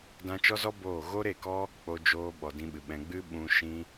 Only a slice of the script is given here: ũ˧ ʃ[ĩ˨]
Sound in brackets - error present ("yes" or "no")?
yes